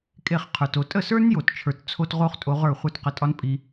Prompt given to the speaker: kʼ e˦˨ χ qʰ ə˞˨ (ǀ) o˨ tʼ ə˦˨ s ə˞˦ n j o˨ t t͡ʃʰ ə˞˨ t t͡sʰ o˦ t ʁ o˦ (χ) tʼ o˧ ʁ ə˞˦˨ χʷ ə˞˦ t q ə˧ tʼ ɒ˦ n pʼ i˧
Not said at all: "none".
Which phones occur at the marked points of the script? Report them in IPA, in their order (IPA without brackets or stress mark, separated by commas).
t, χ